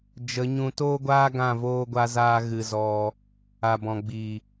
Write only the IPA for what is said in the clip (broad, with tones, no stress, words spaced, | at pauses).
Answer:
d͡ʒə˨˦ɲũ˧ toː˦ɡʷaː˦ɡã˦˨ voː˦ɡʷa˦zaː˦ ɣɨ˧zɔ˧ | a˨bɔ̃˨ ɡ͡bi˨